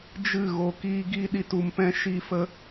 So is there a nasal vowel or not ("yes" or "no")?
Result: yes